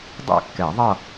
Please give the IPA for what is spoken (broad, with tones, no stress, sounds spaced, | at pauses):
dˤ ɛ̰˥˩ kː ɛ˨˩˦ ðˤ ʌ˥˧